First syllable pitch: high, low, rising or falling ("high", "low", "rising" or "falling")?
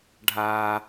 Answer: low